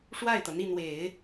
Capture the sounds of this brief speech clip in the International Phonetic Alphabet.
ʂ w a˥˩ ɪ̯ t̪ ɤ˩ n̪ i˥˩ n̪ w e˨˩˦ ɪ̯

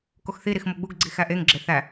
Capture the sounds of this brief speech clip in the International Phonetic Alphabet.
k o x θ i ɾ i x m o ɡ͡b u ɡ ɡ͡ǀ i x æ ʔ e ŋ ɡ͡ǁ e θ æ

